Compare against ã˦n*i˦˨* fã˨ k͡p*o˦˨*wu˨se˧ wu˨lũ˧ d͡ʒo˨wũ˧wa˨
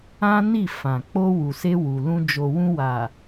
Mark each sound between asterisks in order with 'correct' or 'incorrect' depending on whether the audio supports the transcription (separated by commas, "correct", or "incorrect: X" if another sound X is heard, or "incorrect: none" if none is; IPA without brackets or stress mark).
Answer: correct, incorrect: o˧